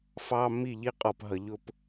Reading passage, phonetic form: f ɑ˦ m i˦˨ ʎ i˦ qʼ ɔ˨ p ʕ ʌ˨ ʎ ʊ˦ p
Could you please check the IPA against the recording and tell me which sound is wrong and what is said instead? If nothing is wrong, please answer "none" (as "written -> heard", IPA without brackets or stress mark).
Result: ʕ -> ɦ